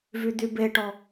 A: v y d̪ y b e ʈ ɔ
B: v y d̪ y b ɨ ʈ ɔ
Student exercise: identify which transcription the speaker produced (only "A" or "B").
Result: A